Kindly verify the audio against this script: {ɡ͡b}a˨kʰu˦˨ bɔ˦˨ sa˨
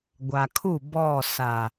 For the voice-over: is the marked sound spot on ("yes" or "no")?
no